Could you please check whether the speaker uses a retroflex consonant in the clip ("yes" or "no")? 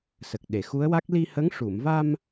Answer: yes